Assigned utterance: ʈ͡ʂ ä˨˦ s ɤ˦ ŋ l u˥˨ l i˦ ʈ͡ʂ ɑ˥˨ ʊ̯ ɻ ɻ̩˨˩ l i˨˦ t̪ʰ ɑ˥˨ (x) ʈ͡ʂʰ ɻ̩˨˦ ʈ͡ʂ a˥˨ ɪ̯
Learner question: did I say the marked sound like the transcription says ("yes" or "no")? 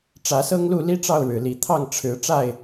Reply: no